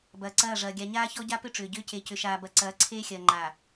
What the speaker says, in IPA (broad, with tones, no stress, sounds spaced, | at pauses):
b ɐː˨ ǀ ɐː˦˨ ʐ ɐː˨ ɡʲ a˨ ɲ aː˦ ç ɔ˦ ɟ a˦ p ʏ˦ ʈ͡ʂ ʏː˨ ɟ ʏː˦ c e˨ c ʏ˨ ʃ aː˨ b ɐ˨ ǀ ɐː˨˦ ǀʰ eː˦ xʲ ɐː˨ ŋ͡ǃ aː˨